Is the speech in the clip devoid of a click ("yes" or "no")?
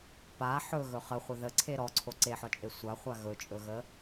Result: no